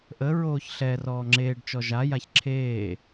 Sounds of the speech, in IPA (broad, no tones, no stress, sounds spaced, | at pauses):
ʔ ə ɹ oː ç ɬ ɛ r ɔː ŋ͡ǁ eː ɖ t͡ʃ ɔ ʒ a j a ç ǁʰ eː